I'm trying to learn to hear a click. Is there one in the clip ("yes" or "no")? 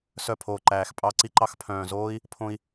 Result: yes